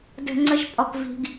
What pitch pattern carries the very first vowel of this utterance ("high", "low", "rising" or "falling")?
low